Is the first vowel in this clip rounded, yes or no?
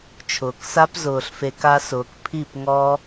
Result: yes